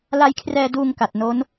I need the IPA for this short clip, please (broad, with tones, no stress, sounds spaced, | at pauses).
l a˧ j kʰ r ɛː˧ d uː˧ ŋ k a˨˩ t̚ n o˦˥ n